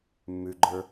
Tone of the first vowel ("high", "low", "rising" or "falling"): low